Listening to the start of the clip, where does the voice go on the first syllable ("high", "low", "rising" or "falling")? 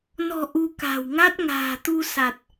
low